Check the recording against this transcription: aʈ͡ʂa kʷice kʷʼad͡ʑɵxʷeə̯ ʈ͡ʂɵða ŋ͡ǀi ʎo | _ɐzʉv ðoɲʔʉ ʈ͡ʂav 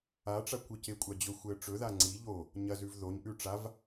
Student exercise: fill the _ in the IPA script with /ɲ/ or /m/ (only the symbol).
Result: ɲ